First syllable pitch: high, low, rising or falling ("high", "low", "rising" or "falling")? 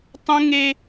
high